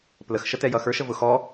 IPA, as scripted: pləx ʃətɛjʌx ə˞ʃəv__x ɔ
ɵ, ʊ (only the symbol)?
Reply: ʊ